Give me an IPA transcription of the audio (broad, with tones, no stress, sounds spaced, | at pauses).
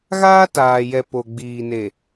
ɣ aː˦ t aː˨ j ɛ˨ p o˨ ɡ͡b iː˨ n e˨